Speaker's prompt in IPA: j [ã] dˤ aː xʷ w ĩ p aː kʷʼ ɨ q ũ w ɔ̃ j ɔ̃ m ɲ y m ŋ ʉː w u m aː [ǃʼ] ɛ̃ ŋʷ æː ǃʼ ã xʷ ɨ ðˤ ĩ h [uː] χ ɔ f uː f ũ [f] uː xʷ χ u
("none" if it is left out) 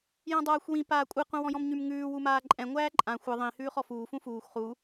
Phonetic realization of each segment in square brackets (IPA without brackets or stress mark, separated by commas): ã, ǃʼ, ʉː, f